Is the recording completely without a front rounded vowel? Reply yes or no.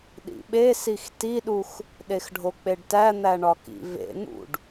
yes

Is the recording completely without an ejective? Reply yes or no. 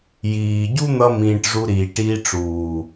yes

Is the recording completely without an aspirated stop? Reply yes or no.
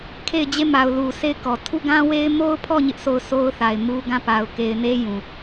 no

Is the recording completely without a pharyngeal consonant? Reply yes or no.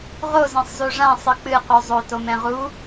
yes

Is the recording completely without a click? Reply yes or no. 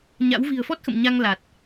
yes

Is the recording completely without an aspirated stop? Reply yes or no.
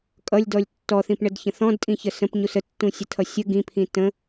no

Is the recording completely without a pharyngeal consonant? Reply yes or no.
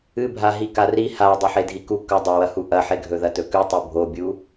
no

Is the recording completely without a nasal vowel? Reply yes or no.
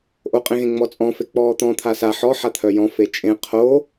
no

